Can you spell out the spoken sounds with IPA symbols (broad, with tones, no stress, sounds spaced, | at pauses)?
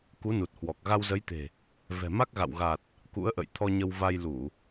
k u˨˦ n u˨˩ t̚ h w ɔ˨˩ k̚ ɣ a˧ w z ə˨˦ j t̪ e̤˨˩ | v ɛ̤˨˩ m a˦˥ k̚ ɣ a̰˧˨ w ɣ a˨˩ t̚ | k ṵ˧˥ ə̯ ʔ ə̰˧˨ j t̪ʰ ɔ˧ ɲ ə˧ w v a˧ j l u˧˩˨